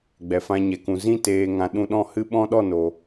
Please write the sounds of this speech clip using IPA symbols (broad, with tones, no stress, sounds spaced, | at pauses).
ɡ͡b ɛ˨ f ã˧ ɲ ɛ˨ k ũ˨ z ĩ˦ t eː˧ ŋ ã˧ ɗ ũ˧ ɗ ɔ̃˦˨ h ɨ˦ ɓ ɔ̃˦ ɗ ɔ˦˨ n o˨